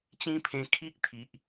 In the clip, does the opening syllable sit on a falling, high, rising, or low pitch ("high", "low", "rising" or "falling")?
high